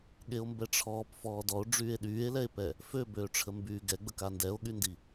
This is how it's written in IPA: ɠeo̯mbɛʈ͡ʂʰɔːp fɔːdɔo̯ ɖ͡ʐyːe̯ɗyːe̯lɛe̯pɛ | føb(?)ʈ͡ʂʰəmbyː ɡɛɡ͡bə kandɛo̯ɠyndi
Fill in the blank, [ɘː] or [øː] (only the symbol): øː